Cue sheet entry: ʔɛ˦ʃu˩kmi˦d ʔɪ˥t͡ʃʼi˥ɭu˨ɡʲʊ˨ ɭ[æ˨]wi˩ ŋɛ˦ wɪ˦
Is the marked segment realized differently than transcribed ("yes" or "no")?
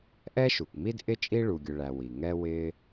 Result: no